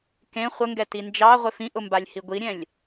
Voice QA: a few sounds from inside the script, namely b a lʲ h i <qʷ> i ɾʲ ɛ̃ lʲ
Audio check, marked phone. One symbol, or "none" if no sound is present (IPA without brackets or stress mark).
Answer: ɡʷ